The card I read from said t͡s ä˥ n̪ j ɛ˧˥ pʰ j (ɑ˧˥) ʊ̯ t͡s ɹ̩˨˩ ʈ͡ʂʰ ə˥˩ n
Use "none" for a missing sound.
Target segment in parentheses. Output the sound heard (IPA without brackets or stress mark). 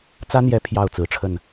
ɑ˥˩